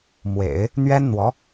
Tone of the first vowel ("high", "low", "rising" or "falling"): low